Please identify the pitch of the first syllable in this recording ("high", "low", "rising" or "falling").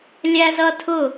high